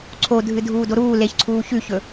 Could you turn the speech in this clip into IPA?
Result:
ǀʰ o dʱ ɨ dʱ uː d o ɾ uː l e ç ǀʰ uː ç ʉ ç ɵ

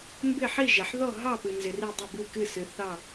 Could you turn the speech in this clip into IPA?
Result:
m b ɪ˥˨ ħ i˥˨ ʒ ɛ˩ ħ ð ɔ˥˨ ɦ ɑ˥˨ p ɨ˩ n z ɪ˩ r i˧˩ dˤ ə˧˩ b ɨ˧˩ k ɨ˧˩ s ɨ˩ θ ɑ˧˩

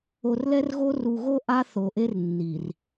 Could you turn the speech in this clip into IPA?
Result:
o˨ r l ɛ˦ r ɣ o˦ r u˨ ɣ o˦ ʔ a˦ θ o˨ ʔ e˦ r nː i˨ r

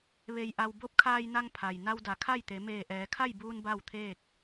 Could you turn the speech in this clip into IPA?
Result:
ʋ e˧ j ʔ a˧ w b o˧˥ p̚ kʰ aː˧ j n a˧ ŋ pʰ a˩ j n a˧ w d a˩˧ kʰ a˥˨ j t̪ e˩˧ m eː˧˩ ʔ ɛː˩˧ kʰ a˥˨ j b uː˧ n b a˥˨ w t̪ʰ eː˥˨ k̚

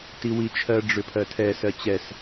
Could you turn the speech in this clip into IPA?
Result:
t i w i t͡ʃʰ ɜ ɖ͡ʐ ʏ pʰ ɜ tʰ ɛ s ɜ t͡ɕ ɛ s

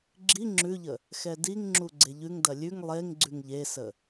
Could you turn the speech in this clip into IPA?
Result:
ɡ͡ǁ i ŋ͡ǁ ʉ ʎ ə | x ɛ d i ŋ ŋ͡ǁ u ɡ͡ǀ e ʎ ʉ ŋ d ɐ lʲ ʉ ŋ lˠ e ŋ ɡ͡ǀ ʉ ŋ ʎ e s ə

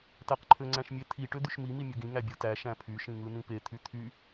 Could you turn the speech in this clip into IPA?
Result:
t æ q ǃʰ ø ŋ͡ǀ æ̃ ʃ mʲ e t̪ʰ i ʈ ø d̪ y ʃ m i m i mʲ ɯ ɡ ĩ ŋ æ bʲ ɯ t æ ʃ æ̃ pʰ y ʃ ĩ ŋ ɯ n ĩ p e t̪ʰ y t̪ʰ y

